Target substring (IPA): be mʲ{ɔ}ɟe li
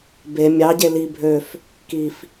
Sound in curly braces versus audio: incorrect: ɑ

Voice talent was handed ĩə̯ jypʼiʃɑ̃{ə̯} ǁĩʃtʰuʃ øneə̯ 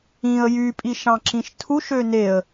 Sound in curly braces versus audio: incorrect: none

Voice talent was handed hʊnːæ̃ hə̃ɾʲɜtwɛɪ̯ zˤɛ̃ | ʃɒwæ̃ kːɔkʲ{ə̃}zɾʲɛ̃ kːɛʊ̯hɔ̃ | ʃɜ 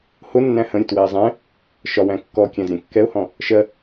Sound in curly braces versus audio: incorrect: æ̃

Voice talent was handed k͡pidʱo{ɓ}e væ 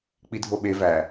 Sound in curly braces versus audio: correct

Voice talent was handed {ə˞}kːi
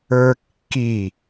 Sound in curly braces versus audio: correct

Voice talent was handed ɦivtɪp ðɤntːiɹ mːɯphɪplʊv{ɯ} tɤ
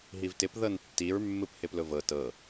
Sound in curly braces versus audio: incorrect: ɤ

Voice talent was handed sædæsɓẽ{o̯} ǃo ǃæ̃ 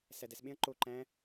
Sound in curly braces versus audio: incorrect: ɐ̯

